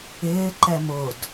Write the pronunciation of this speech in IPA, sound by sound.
ɪː ǃ ɛ m ʊ d

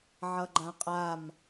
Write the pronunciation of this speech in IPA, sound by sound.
ʕ ʌ ɡ͡ǃ ã qʼ a m

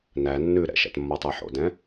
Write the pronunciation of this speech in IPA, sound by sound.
n æ nː ʉ ɾ ɛ̰ ʃ æ̰ t mː ɔ tˤ ɛ ħ o̰ d ɛ̃

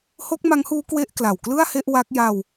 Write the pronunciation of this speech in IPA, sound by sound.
h o˦˥ k̚ m a˦˥ ŋ h uː˦˥ k w e˥˩ ʔ k l a˨˩ w k l ɯ˥˩ a̯ h e˥˩ ʔ w a˦˥ k̚ j a˧ w

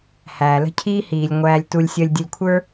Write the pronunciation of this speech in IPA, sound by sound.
h æː˨ l ə̤˦ cʰ iː˦ h iː˨ lʲ ŋʷ æː˨ lʲ t u˨ lʲ sʲ əː˧ lʲ dʲ ə˧ lʲ kʷʰ ə˞˦

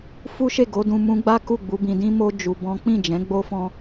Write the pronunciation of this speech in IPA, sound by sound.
f u˦ ʃ e˦˨ ɡ o˨˦ d ũ˧ m ũ˧ ɡ͡b a˦ k u˦˨ ɡ͡b u˨˦ b ĩ˧ d ĩ˦ m o˦ d͡ʒ u˧ b ɔ̃˦ k͡p ĩ˦˨ d͡ʒ ɛ̃˨˦ ɡ͡b o˦ f ɔ̃˦

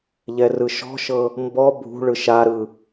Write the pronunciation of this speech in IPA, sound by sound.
ʎ ɛ r ɯ ʃ ɔ̤ ʃ ɤ | m b ɔ bʱ ṳ ɭ ɯ ʃ a ɾ ɯ

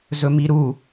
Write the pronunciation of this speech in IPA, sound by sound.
z ɵ m i ɾ u

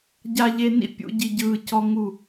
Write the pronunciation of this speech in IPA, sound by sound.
ɟ a˨ ʎ e˨ n ḭ˦ pʲ ṵ˨ ɟ i˨ ɟ ɯː˨ c ɔ˦ ŋ u˦˨

